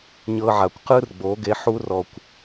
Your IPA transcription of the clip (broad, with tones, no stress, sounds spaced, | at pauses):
ɲ ɤ˧ ʕ a˨ kʷ q ɯ˦ r ɡ͡b o˨˦ ɡ e˧ ħ u˦ r ɔ˧ kʷ